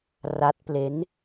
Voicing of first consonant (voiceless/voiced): voiced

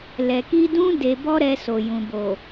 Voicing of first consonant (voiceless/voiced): voiced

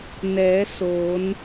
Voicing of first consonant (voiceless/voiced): voiced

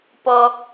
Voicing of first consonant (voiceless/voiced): voiceless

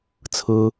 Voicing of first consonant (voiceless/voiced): voiceless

